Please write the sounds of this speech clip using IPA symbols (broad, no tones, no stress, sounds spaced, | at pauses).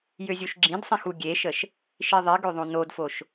j ø zʲ u ʃ ɡ͡ǁ ĩ d sˤ ĩ x u ɡʲ e ʃ ə ʃ | ʃ i ðˤ i ɡ ø ðˤ õ n o d f o ʃ